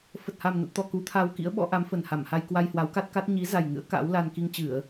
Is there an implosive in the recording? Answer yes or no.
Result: yes